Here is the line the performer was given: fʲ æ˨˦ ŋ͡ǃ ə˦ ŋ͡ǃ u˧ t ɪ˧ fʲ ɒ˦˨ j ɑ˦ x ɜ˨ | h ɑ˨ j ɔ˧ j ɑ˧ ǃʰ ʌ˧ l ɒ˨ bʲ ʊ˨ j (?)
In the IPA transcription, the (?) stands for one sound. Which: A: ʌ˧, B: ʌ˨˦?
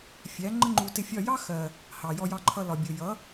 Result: B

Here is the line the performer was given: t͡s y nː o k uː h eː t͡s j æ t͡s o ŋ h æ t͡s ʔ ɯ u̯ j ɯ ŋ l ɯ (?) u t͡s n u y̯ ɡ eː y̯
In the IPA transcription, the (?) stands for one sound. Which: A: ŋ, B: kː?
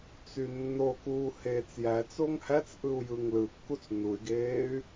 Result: B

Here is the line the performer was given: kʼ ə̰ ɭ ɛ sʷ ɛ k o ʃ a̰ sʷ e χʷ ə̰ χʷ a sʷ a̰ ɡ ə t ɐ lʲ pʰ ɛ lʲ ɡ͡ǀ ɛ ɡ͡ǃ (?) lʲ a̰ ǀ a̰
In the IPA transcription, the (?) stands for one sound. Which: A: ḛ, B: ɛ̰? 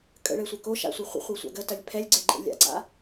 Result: A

